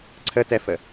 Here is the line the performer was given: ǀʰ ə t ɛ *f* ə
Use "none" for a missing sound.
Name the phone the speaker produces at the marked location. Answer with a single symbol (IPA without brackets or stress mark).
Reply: f